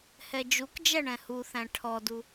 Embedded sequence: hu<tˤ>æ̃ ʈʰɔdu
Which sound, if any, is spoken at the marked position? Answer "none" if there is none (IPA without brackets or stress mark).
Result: θ